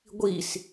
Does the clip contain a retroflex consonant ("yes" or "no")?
no